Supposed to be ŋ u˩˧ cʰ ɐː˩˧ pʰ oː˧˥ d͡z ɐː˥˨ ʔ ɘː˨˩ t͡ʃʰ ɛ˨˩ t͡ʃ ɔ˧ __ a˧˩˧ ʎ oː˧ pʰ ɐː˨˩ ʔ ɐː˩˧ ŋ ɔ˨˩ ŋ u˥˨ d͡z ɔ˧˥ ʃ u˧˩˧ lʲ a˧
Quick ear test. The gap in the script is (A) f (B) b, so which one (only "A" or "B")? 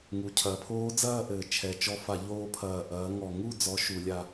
A